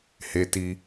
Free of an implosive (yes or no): yes